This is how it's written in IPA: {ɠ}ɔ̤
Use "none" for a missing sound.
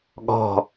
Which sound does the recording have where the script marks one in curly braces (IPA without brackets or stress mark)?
ɠ